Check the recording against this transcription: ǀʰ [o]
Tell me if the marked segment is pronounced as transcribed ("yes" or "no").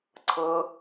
no